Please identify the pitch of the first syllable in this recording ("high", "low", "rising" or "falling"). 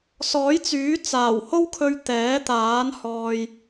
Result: rising